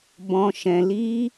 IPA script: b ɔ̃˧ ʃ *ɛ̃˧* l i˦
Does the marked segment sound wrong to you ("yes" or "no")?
no